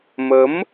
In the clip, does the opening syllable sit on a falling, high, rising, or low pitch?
rising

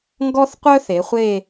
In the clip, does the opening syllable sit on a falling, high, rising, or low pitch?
high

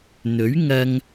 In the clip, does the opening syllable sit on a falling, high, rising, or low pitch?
rising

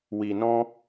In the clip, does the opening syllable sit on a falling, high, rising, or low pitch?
low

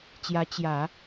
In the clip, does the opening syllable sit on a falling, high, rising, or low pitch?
rising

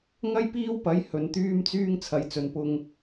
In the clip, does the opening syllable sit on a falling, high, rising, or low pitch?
high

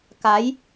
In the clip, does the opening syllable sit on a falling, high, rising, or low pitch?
rising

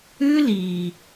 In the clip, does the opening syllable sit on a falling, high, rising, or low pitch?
high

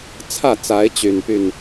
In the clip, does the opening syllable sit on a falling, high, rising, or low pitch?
falling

